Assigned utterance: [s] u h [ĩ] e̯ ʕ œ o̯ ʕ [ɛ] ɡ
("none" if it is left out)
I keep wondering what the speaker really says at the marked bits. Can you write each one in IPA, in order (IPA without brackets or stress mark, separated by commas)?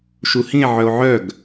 ʃ, ĩ, œ